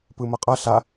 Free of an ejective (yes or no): no